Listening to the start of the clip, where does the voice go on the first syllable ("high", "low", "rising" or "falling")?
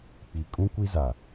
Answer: low